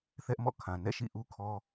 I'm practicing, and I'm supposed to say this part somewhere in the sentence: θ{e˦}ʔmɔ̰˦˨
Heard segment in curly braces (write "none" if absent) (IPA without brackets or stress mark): ɛ˦